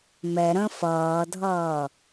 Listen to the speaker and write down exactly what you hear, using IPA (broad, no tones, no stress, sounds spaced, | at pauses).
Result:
m ɛ ɾ ə̃ f ʌː dʱ ʌː